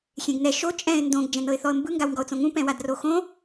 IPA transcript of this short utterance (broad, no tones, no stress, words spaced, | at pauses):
xʲẽɡnɛ ʃo t͡ʃʼɛ̃ɪ̯ ndõɡ d͡ʒɛ̃nɤɪ̯θɔə̯mbɯ ŋɡawŋɡɔʊ̯t͡sõŋũ pɛ̃wadroxõ